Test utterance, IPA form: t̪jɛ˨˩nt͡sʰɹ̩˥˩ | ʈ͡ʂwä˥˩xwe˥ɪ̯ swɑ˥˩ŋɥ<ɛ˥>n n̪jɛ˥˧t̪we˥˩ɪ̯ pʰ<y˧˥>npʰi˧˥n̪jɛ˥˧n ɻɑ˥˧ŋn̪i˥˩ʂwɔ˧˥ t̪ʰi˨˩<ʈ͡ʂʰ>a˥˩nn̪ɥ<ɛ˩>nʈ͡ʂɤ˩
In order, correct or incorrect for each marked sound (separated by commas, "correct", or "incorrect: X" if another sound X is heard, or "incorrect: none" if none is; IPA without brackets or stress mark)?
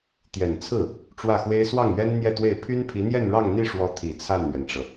correct, incorrect: y˥, incorrect: t͡sʰ, correct